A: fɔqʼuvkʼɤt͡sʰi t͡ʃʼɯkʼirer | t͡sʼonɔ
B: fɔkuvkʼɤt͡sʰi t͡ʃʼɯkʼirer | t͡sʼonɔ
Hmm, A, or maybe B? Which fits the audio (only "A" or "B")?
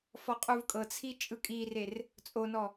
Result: A